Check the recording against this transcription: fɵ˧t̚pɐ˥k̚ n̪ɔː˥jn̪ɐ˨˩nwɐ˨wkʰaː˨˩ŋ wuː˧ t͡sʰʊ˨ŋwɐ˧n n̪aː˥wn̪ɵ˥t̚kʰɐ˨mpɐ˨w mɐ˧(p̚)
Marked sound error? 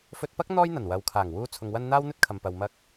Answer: yes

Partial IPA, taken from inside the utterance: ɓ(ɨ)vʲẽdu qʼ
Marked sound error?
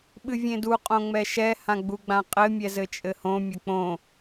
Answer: no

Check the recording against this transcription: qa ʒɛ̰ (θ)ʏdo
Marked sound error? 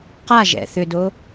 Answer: no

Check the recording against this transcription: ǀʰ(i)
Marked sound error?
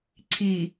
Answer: no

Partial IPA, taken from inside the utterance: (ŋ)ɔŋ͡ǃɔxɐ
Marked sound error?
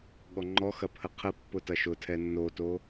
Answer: yes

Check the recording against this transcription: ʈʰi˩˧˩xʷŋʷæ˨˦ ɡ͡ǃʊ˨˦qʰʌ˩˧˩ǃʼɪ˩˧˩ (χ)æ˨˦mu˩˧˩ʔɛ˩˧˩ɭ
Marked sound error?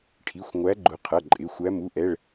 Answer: yes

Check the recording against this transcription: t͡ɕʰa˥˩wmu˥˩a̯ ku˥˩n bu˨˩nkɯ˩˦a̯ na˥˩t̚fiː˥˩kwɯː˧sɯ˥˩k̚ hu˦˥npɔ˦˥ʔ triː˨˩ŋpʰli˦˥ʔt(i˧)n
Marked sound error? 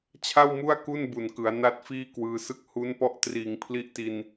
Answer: no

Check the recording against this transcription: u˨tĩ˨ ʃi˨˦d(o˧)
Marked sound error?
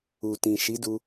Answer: yes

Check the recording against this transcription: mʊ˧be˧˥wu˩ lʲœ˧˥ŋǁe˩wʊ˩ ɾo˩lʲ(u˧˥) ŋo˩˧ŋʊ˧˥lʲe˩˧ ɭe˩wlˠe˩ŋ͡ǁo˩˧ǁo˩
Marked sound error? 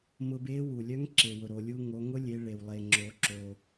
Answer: yes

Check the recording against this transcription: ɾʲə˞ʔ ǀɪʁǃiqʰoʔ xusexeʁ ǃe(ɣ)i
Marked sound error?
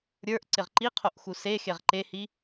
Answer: yes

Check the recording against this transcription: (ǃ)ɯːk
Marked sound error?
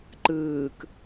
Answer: no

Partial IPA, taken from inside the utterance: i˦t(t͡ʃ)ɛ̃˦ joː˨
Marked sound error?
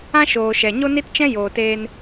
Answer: no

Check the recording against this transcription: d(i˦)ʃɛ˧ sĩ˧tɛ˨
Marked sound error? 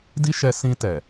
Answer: no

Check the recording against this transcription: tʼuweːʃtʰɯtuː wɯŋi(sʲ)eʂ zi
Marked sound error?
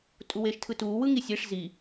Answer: no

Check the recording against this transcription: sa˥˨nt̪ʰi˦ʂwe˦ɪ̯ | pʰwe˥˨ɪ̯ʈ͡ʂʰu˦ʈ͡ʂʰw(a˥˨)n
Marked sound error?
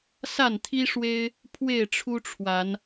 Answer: yes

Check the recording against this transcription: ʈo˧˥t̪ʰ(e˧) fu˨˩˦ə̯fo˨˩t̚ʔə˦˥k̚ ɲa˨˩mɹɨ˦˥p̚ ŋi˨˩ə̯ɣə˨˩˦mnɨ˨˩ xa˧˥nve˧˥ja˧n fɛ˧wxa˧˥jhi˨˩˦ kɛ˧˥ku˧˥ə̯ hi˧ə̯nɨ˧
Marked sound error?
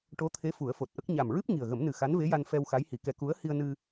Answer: yes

